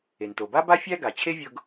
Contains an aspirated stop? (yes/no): yes